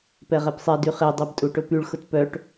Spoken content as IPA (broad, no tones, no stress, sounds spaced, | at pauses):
p ɛ ʁ ɛ p sˤ ɛ d y χ e dˤ ɛ b tʼ u ʈ ʊ p y ɭ x ʊ t p œ ʈ